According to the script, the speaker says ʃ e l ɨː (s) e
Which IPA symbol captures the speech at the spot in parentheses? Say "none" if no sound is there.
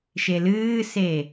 s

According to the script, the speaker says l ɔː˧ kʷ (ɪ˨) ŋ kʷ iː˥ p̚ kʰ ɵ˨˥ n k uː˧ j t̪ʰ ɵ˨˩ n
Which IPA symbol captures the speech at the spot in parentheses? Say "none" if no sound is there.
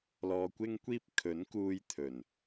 ɪ˥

